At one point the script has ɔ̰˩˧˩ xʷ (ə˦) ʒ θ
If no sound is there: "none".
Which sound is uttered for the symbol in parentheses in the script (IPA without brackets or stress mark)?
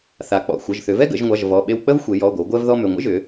ə˩˧˩